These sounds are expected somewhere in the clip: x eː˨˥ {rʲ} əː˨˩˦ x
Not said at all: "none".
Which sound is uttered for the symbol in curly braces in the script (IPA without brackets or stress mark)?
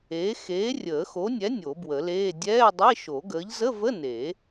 rʲ